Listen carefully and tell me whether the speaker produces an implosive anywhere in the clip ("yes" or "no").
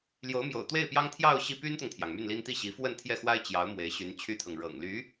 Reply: no